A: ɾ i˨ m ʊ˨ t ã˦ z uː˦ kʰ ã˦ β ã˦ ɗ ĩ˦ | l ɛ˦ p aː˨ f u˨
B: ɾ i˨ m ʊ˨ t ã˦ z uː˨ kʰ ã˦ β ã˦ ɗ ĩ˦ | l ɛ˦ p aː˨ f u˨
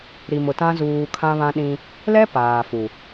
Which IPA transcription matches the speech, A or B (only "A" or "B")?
B